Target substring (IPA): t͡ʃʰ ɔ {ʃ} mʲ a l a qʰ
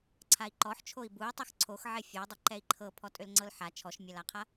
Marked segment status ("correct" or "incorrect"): correct